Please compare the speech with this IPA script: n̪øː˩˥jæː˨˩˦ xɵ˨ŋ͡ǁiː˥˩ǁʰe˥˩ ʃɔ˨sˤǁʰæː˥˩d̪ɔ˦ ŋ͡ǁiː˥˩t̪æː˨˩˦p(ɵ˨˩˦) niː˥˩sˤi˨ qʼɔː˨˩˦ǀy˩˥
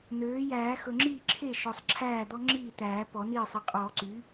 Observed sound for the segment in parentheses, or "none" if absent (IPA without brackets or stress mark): ɔ˨˩˦